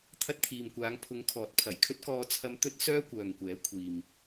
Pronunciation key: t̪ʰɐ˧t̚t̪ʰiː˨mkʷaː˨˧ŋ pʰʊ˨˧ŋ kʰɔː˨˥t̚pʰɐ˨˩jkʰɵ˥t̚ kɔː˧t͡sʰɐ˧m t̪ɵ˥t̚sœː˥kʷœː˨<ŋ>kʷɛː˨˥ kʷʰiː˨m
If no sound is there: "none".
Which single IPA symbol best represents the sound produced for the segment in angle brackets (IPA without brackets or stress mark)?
ŋ